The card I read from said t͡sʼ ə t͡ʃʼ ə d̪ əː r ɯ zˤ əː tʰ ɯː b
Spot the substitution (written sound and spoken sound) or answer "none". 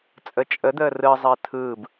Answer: none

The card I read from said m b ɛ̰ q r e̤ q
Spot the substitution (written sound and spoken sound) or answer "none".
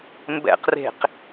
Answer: none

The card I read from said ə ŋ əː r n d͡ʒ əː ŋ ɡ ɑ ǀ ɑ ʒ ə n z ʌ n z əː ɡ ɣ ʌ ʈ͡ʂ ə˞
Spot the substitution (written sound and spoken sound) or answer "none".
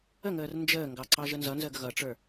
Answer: none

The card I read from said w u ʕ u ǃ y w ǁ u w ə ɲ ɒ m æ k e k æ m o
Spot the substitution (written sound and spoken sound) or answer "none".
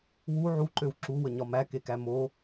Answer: y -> ø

